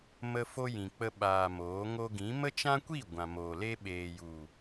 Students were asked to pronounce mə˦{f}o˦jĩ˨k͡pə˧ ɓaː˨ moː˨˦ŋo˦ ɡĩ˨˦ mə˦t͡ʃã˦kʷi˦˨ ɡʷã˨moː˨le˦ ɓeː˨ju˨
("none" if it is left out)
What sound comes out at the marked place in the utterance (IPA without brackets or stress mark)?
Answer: f